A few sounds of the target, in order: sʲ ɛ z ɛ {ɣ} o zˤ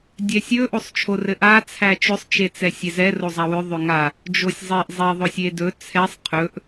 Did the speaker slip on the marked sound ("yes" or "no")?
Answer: yes